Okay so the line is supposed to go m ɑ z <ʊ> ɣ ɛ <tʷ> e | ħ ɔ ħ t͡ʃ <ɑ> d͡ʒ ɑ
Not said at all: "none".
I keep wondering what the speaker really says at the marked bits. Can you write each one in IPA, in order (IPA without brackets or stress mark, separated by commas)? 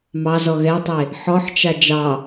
ɔ, tˤ, a